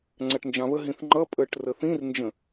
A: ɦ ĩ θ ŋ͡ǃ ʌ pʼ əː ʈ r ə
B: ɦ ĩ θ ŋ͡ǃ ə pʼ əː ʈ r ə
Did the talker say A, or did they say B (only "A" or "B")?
A